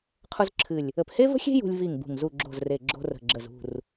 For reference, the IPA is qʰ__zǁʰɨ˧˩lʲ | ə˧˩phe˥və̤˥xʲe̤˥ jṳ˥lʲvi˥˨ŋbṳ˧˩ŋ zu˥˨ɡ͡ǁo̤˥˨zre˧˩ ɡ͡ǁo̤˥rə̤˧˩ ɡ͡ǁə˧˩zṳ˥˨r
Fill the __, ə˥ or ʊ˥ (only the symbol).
ʊ˥